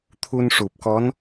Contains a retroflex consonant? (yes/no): yes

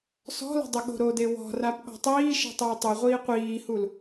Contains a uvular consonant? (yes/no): yes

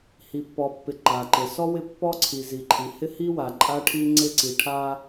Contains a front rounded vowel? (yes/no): no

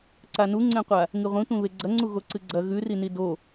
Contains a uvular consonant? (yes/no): yes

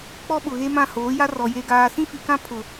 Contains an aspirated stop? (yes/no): yes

